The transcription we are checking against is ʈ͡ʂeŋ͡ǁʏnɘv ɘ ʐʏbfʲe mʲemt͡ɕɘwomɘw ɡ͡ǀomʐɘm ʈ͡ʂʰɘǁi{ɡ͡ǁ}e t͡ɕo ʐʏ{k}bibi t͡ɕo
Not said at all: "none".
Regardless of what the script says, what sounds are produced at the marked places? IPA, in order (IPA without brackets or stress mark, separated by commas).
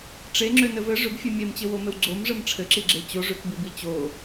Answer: ɡ͡ǁ, k